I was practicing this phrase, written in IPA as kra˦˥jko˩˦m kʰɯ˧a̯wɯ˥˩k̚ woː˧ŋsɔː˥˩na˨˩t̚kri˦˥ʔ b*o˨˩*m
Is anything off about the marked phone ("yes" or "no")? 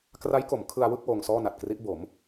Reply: yes